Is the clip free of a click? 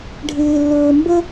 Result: yes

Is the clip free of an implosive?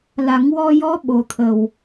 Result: no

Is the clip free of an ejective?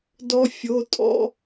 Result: no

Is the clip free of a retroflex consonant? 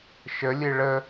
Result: no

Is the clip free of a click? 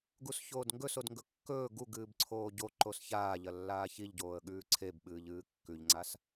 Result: no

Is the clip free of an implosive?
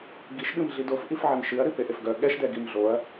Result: no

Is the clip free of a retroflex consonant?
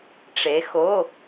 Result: no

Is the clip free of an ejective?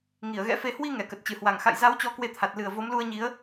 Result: yes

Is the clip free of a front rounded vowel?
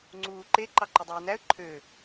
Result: no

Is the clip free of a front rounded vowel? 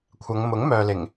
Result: no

